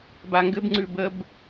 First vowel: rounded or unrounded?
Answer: unrounded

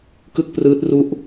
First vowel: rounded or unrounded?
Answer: unrounded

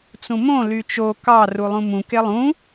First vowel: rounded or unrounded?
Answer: rounded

